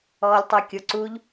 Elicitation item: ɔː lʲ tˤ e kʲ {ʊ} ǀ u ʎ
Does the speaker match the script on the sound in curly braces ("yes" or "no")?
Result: yes